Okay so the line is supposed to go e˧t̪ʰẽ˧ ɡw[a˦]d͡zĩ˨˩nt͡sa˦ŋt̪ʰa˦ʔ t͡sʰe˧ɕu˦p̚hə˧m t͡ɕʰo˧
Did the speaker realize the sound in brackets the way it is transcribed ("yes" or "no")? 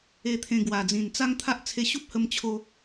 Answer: no